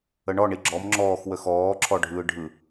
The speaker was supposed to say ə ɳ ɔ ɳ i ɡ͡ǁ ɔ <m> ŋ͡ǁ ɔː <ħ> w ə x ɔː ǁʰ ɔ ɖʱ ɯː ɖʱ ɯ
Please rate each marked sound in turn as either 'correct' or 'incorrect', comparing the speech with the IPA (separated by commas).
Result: correct, incorrect